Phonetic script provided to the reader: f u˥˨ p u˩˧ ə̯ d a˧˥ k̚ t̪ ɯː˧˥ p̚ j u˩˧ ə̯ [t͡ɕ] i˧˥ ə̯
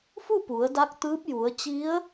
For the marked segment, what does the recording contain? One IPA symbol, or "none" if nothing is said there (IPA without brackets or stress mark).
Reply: t͡ɕ